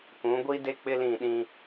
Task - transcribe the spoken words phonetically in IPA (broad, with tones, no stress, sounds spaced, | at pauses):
k ũ˨˦ ɡʷ i˦ d e˦ k͡p ɪ˦ l ĩ˦˨ ɗ ĩ˦